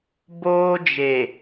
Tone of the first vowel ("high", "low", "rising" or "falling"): high